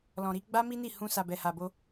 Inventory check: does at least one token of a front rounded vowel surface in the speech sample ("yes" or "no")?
no